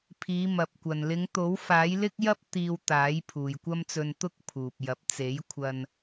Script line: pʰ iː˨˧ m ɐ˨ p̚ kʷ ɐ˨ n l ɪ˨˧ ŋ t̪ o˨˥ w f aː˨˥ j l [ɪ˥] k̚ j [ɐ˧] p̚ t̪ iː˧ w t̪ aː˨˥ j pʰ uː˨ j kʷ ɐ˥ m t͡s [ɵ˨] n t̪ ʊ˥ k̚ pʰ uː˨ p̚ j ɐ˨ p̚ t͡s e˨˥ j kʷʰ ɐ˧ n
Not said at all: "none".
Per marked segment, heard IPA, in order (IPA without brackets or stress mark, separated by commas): ɪ˥, ɐ˥, ɵ˧